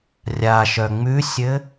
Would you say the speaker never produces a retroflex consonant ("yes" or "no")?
yes